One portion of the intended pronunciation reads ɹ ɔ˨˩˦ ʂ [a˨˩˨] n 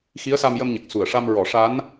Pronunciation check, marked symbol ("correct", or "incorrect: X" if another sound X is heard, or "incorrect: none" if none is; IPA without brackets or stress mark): incorrect: a˧˥